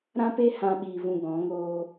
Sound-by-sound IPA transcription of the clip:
ɾ ã˦ p e˦ h ã˦ ɓ iː˧ v ũ˧ ɡ ɔ̃˨˦ ŋ oː˧

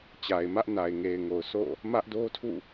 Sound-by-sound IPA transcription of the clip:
t͡ɕ a˨ ɪ̯ m ä˦ ʔ n a˨ ɪ̯ ŋ e˨ ɪ̯ ŋ o˨ ʊ̯ s o̰˦˨ | m ä˦ ʔ d o˦ tʰ ṵ˦˨

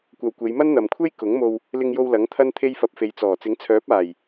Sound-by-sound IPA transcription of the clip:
kʷ ɐ˧ w kʷ e˨˧ j m ɐ˥ n n̪ ɐ˨ m kʷʰ e˥ j k ʊ˨˥ ŋ m o˧ w | l ɪ˧ ŋ j o˧ w l ɐ˨˥ ŋ t̪ʰ ɐ˥ n t̪ʰ e˥ j f ɐ˧ p̚ f e˨˧ j t͡s ɔː˨˩ t͡s ɪ˨˥ ŋ t͡sʰ œː˨˥ p̚ aː˨˩ j

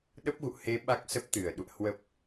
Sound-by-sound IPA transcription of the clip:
ɗ ə˦˥ p̚ ɣ ṵ˧˨ h e˨˦ ɓ a˦˥ k̚ s ə˦˥ p̚ t̪ ɨ˧˩ ə̯ ɗ ṵ˧˨ ə̯ h w ə˨˩ p̚

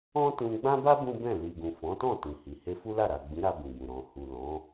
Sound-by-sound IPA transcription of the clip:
ɔ̃˦ t ũ˧ ɡ͡b ã˦ b a˦ b ũ˦ b ɛ̃˦˨ l i˨ ɡ ũ˨ f ɔ̃˨˦ t ɔ̃˦˨ t ĩ˨ h i˨ h e˧ f u˦ l a˦˨ ɾ a˨ ɡ͡b ĩ˨˦ ɾ a˧ b ĩ˨ b ũ˨ ɾ ɔ̃˨ h u˨ l ɔ̃˨˦

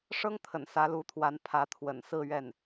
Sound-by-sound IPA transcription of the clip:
ʂ ɤ˥ ŋ t̪ʰ ə̰˨˩ n s ä˧˥ l u˧˥ t̪ʰ w a˧˥ n pʰ ä˧˥ t̪ʰ w ə̰˨˩ n s ɹ̩˥˧ ɥ ɛ˥˩ n

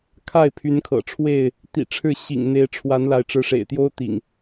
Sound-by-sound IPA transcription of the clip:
kʰ a˥˨ ɪ̯ pʰ y˨˦ n kʰ ɤ̰˨˩ ʈ͡ʂʰ w e˥˨ ɪ̯ | t̪ ḭ˨˩ ʈ͡ʂʰ ɻ̩˥˨ ɕ ḭ˨˩ ŋ n̪ e˨˦ ɪ̯ ʈ͡ʂʰ w a˨˦ n l a˨˦ ɪ̯ ʈ͡ʂ ɻ̩˨˦ ʂ ḛ˨˩ ɪ̯ t̪ j o˦ ʊ̯ t̪ ḭ˨˩ ŋ

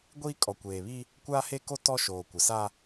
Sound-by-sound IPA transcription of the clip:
ɡʷ iː˦ kʼ ɔ˨ kʷ eː˨ β i˦ | kʷ aː˦ h e˦ k o˦ t ɔ˦ ʃ oː˨ kʷ ɪ˨ s a˦

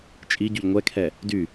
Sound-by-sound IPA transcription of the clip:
t͡ʃʼ i ɟ y ʎ ŋʷ ɛ kʰ ɛ | d y

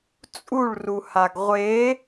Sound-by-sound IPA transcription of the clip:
t͡sʼ u ɭ r u h a ɡ ʁʷ e

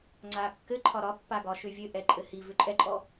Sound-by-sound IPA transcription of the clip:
ŋ͡ǀ a kː ɘ ǃʰ ɒ ɾ ɒ pː a ɡ ɒ ʃ ʏ vʲ ɘ ʔ ɛ ǃʼ ɘ h i v ʏ ǃʼ ɛ ǃʼ ɔ

